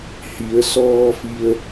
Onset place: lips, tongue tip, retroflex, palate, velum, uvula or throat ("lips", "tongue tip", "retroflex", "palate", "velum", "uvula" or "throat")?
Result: throat